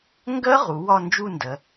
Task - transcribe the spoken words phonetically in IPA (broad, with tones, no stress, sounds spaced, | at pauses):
ŋ ɡ ɜ˦˥ ʁ u˩˧ w ɒ˥˧ n d͡ʒ u˥˧ n d ɜ˩˧